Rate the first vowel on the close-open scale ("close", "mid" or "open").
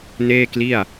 mid